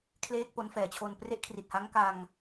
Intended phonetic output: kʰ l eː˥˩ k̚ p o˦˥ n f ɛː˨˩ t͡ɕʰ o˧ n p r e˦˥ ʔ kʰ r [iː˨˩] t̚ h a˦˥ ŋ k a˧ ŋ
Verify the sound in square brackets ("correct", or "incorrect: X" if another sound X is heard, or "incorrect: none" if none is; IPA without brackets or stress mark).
incorrect: i˨˩